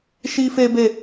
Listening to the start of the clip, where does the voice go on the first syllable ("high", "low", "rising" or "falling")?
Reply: high